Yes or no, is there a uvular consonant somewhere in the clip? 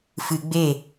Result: no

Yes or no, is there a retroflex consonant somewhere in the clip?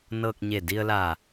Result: no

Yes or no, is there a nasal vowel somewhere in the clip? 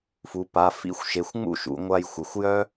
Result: no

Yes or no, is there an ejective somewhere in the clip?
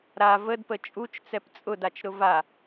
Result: yes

